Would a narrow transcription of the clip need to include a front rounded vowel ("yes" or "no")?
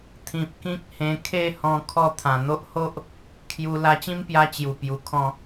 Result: no